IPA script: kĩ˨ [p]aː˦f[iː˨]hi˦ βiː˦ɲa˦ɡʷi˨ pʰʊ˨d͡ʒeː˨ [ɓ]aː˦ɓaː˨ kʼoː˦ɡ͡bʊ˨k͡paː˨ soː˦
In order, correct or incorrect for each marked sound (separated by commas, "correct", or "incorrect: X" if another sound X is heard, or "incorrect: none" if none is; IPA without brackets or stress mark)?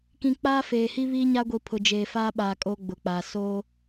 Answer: incorrect: k͡p, incorrect: eː˨, incorrect: f